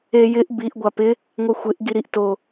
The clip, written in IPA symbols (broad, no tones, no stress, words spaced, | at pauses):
ejɪʔ biʔ ɡʷapɪ | ŋʷɛxʷɪʔ ɡiɾiʔ to